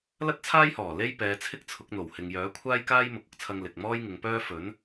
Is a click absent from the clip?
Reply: yes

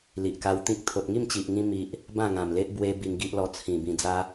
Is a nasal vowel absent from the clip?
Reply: no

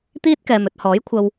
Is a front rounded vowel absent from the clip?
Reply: yes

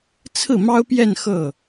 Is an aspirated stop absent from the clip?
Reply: no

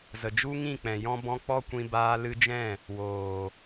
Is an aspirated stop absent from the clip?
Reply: yes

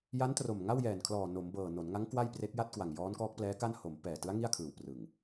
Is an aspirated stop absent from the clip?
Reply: no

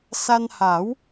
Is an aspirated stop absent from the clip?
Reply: yes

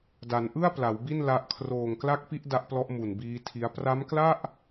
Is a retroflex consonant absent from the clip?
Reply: yes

